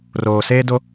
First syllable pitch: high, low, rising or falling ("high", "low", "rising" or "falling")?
low